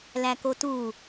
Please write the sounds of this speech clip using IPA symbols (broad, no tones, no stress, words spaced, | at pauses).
lækotu